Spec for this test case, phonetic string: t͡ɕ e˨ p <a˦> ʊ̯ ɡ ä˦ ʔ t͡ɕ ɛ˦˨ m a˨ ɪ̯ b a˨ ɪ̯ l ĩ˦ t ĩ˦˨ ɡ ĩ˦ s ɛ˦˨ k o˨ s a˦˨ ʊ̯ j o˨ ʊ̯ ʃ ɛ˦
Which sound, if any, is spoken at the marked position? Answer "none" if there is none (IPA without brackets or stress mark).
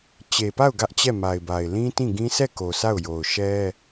a˦˨